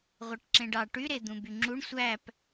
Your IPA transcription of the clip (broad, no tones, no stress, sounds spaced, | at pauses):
ʁʷ e ʈ ǁ ẽ ɖ ɑ ʈ y ɾ e d̪ ũ b y ŋ͡ǁ u ɳ sʷ æ p